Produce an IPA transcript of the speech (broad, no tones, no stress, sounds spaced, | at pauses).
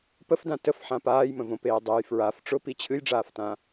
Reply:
p ə f d ã t ə f ħ ã p aː j m ə̃ v õ p eː dˤ e j f ɹ a f ʈ͡ʂ ʊ p i t͡ɕʰ ɨ j ɖ͡ʐ aː f t ã